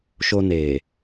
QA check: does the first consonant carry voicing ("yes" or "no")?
no